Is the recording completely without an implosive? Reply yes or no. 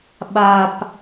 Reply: no